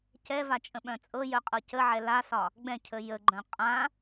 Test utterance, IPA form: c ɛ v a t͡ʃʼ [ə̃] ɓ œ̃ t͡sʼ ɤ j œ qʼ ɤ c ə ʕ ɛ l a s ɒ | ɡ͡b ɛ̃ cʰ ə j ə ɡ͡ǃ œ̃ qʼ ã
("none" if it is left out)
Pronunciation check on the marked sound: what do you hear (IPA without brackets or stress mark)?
ə̃